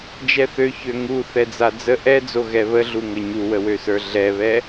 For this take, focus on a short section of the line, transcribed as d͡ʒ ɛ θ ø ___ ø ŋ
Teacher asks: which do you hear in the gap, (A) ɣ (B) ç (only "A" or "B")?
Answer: B